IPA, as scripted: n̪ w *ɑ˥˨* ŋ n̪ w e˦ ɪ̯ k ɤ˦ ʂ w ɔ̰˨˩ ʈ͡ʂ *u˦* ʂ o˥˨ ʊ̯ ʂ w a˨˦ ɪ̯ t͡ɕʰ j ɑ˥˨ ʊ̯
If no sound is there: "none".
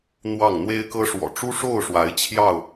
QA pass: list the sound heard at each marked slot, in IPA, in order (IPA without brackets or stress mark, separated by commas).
ɑ˥˨, u˦